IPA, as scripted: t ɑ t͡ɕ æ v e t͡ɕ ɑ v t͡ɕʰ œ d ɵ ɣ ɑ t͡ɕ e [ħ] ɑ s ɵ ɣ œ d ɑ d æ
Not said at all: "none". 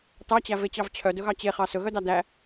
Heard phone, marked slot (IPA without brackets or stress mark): χ